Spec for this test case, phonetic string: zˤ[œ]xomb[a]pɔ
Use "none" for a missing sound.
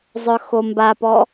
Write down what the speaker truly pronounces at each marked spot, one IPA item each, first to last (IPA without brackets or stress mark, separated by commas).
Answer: œ, a